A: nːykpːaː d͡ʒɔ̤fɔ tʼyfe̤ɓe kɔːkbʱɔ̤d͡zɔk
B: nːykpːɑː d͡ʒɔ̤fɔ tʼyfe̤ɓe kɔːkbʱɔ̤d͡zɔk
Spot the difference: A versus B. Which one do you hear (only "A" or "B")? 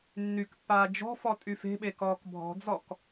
A